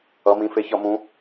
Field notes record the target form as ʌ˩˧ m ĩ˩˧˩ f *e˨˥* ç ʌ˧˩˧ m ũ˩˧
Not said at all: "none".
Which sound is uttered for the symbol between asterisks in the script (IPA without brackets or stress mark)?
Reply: e˨˥